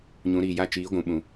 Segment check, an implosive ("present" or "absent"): present